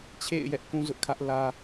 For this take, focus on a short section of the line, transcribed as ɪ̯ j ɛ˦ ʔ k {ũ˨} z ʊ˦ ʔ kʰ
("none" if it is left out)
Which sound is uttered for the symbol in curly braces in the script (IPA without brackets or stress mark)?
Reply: ũ˦